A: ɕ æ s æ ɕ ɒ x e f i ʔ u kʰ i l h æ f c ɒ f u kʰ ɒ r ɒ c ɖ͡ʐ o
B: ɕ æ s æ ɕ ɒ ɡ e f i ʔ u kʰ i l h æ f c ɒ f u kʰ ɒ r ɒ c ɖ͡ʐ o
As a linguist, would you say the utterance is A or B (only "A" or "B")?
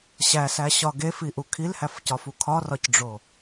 B